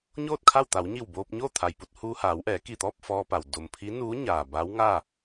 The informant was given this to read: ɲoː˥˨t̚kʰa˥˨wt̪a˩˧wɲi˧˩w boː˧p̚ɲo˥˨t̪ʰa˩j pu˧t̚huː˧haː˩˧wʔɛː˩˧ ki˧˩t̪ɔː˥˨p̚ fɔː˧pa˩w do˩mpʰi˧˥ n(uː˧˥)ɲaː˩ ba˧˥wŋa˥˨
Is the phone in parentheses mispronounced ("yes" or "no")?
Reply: no